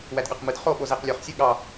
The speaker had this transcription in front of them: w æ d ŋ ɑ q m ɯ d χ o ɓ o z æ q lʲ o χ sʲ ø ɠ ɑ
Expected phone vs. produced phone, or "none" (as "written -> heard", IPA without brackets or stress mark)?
ŋ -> ɠ